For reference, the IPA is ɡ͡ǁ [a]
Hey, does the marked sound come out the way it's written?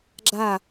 yes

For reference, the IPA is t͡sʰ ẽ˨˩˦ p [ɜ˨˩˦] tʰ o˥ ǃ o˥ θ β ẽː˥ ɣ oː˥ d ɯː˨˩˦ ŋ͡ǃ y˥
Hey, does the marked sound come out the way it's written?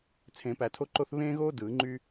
no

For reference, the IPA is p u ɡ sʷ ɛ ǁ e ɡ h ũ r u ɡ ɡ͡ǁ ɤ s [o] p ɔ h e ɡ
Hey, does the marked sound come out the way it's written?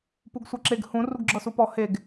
no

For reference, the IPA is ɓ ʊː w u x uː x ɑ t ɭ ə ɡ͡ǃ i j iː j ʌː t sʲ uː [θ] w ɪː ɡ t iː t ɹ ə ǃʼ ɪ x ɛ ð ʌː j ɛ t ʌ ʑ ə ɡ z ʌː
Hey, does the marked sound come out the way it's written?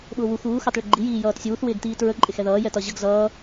yes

